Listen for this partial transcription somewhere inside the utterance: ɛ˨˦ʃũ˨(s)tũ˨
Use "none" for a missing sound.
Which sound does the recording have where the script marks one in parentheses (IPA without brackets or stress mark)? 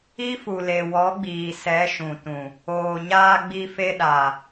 none